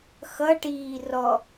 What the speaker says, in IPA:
x ʌ ʈ iː r ɔ

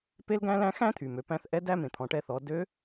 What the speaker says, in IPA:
p e˥ l ɡ æ̃˥ l æ̃˥ x æ̃˥ t̪ʰ y˩ m ø˩˧ p æ̃˧ θ ʔ ɛ˧˥ d æ˥ m ẽ˩ t̪ʰ ɔ̃˩˧ ʈ ɛ˧ θ ɔ˩˧ d ø˧˥

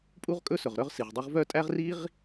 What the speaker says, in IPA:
pʼ u˥ ʁ kʼ ɵ˥ s ɵ˩ ʁ ɾ œ˥ ʁ s i˩ ʁ dˤ ʉ˥ ʁ v œ˥ tʼ æ˥ ʁ r i˥ ʁ

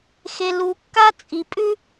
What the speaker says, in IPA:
x e˩ l u˩ kː a˥ t͡sʼ i˩ pʼ ʉ˥

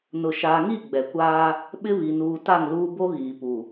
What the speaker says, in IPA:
n ʊ˨ ʃ aː˨ ŋ i˦˨ ɡ͡b ɛ˨ kʷ aː˦ | ɓ ɪ˦ β i˨ n uː˨ t a˦˨ ŋ l uː˦ b o˦ ɣ iː˨ p u˨

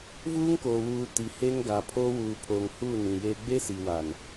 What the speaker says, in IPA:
v uː˦ ŋ k oː˨ w uː˨ t i˨ h eː˦ ŋ ɡ a˨ pʰ oː˦ w uː˨ pʰ oː˨ ŋ h uː˦˨ n ĩ˨ j eː˦ ɡ͡b e˦ s i˨ w a˨ n

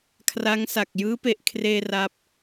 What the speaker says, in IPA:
kʰ r a˦˥ ŋ s a˨˩ k̚ j ɯː˦˥ p e˨˩ ʔ kʰ r eː˧ r a˦˥ p̚

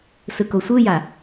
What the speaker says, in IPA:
s ɯ k o sʷ ɯ j a

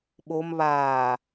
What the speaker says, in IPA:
ɓ o m β aː

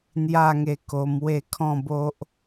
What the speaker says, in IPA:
n̪ j a˥˧ ŋ e˧ k o˧ m w e˥˧ kʰ ɔ̃˥˧ b o˦ ʔ

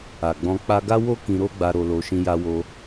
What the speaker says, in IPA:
a˨ ɡ͡b ɔ̃˧ k͡p a˧ ɡ a˦ w o˦ k ĩ˧ ɾ o˦ ɡ͡b a˧ ɾ o˧ l o˧ ʃ ĩ˧ j a˧ w o˧

